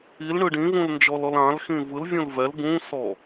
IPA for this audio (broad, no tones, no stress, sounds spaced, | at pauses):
i l ɳ ɯ ɖ ĩ v ũ l n d͡ʒ ɔ l ɔ l ã l x ĩ v ɯ l vʲ ũ l v ɛ l ɡ ũ s ɔ